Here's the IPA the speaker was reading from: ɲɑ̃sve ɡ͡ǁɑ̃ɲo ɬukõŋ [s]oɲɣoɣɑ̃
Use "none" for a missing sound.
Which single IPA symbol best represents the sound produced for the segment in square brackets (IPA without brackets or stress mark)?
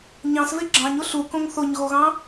θ